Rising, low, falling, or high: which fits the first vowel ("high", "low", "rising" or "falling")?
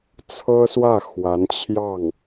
high